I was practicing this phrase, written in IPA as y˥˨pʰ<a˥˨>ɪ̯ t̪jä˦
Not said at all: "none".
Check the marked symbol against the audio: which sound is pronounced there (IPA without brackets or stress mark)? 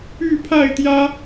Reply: a˥˨